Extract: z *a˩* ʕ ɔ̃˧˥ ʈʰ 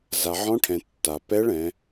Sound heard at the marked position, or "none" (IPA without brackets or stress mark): a˩